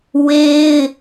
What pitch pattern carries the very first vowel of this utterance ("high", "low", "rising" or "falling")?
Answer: high